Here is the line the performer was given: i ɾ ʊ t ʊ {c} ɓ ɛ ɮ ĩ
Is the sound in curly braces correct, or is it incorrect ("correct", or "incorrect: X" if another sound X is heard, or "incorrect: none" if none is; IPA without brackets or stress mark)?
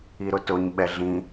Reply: incorrect: ɲ